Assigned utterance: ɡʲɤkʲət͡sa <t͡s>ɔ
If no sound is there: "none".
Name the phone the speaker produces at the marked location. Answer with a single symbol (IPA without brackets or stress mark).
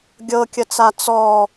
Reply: t͡s